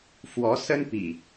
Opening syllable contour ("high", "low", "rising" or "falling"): rising